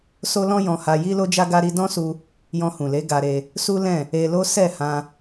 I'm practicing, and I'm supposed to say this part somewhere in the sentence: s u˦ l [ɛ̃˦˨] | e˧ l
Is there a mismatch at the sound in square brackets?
no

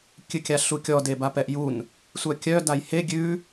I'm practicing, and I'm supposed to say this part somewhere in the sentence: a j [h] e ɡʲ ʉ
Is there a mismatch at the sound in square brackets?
no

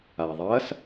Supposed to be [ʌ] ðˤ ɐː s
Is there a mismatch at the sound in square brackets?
yes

